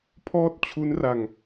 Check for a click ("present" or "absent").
absent